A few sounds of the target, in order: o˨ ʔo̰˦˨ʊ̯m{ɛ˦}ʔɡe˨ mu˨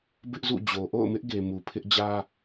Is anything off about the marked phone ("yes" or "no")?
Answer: yes